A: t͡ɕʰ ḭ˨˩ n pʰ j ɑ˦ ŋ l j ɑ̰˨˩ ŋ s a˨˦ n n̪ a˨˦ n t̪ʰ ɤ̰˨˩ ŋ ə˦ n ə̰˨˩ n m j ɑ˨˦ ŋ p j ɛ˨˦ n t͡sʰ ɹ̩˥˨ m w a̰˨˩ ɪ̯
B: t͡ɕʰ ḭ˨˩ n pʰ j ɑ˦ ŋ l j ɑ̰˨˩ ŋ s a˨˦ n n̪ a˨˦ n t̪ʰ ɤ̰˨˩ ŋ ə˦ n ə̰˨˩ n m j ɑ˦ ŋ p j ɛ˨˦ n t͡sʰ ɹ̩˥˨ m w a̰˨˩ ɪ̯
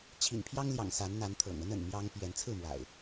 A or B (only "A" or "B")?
B